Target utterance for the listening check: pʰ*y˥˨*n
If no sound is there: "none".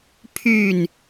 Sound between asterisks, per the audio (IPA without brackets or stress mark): y˥˨